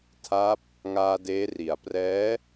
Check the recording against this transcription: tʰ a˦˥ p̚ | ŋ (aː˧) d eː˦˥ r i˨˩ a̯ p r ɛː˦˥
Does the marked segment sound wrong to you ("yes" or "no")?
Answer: no